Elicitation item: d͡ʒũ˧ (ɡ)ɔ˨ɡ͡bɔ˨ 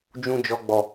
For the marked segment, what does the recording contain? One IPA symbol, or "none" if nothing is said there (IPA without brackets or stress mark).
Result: d͡ʒ